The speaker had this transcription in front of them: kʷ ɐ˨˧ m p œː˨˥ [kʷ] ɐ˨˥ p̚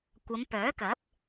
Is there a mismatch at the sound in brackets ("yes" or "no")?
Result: yes